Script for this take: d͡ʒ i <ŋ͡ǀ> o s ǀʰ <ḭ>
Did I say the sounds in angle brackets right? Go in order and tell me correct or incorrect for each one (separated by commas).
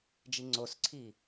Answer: correct, incorrect